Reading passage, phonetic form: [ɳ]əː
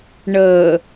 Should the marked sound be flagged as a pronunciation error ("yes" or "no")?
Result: no